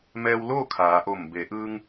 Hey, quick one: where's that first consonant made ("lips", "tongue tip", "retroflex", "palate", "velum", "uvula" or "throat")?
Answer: lips